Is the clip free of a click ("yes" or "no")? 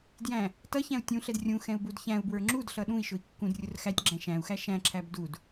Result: no